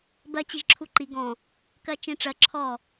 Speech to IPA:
b ɜ t͡ɕ i ʒ ǁʰ u ǃ i ɡ ɔ̃ | k ɜ t͡ʃ ĩ ʈ͡ʂ ɜ ǁʰ ɔ

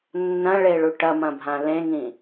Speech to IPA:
nː ɐ̃ ɭ e ɭ u ʈ ɐ m ɐ̃ bʱ ã l ẽ ŋ ĩ

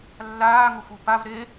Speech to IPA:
lː aː ŋ ʊ xʷ ɨ p a v ɾ e

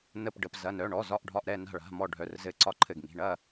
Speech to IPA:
n ə˧˩ p ɖ ə˩˧˩ p z ɐ˩˧˩ n œ˩˧˩ ɳ ɔ˩˧˩ z ɒ˧˩ ʔ ɖʱ ɒ˧˩ ʔ ɾ ɛ˧˩ n a̤˧˩ ɭ a̤˩˧˩ m ɔ˧˩ ɖʱ œ˩˧˩ r z ɘ˧˩ ǀ ɒ˧˩ ǃʰ ɘ˧˩ ɡ ŋ i̤˩˧˩ ɳ ɐ˧˩

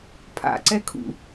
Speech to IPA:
pʰ a̰ ǀ ɛ kʰ ṵ

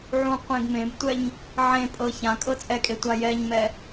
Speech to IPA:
ʕ ũ qʷ ẽ ɡ m ẽ b tʷ ɛ ɲ | ʕ ẽ pʼ ɤ ç ã kʼ ɤ t͡sʼ ɛ kʼ e tʷ a j ɛ ɲ m ɛ

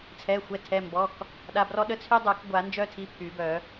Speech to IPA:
t͡sʰ ɛ˩˧˩ xʷ ɛ˩˧˩ tʰ ɛ˩˧˩ m b ɔ˩˧˩ k | ɗ a˩˧˩ b r ɔ˦ ɗ ə˦ t͡sʰ y˦ dˤ œ˨˩˦ k ɡʷ a˨˩˦ n d͡ʒ œ˦ tʰ i˩˧˩ pʰ y˨˩˦ b œ˨˩˦

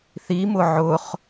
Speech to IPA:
θ i m ʊ ʕ ʊ χ

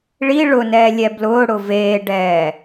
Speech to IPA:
ɭ i ɭ ʊ n ɛː lʲ ɛ b l ʊː ɽ ʊ v eː ɖ ɛː

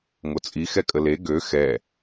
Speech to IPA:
ŋ o t͡sʼ i x ɛ kʼ ə l e ɡ ø x ɛ

